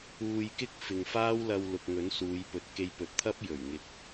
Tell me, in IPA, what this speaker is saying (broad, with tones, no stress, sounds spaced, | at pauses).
uː˧ j k ɪ˥ k̚ f ɪ˨ ŋ f aː˥ w l ɐ˧ w l ʊ˨ k̚ ŋ ɵ˨˥ n s uː˨˧ j p ɵ˨˥ t̚ k e˧ j p ɵ˨ t̚ t̪ʰ ɐ˥ p̚ j ɵ˨˩ ɥ ŋ ɪ˨˥ k̚